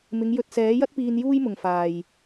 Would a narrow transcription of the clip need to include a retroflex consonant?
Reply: no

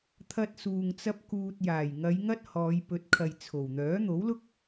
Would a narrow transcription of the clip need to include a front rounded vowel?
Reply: yes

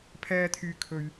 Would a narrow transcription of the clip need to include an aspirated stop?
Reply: yes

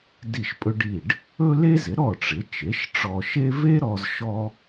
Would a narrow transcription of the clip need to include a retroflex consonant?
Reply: yes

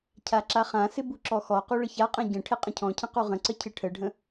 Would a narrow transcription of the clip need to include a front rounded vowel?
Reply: no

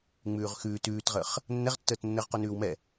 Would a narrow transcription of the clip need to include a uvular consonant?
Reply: yes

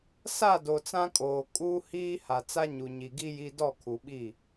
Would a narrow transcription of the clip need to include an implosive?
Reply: yes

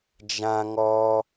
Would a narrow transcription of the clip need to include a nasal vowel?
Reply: yes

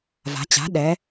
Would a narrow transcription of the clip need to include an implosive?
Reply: yes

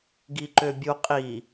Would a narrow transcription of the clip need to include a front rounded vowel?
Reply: yes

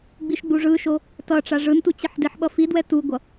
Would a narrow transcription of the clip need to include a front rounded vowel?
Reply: no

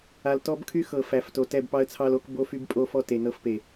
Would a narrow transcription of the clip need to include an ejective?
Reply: yes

